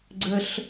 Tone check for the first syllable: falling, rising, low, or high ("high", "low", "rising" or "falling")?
low